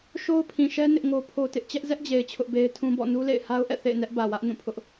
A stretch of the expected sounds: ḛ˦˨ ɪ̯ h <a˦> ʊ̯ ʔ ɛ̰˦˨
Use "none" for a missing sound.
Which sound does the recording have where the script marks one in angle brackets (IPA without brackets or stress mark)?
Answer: a˦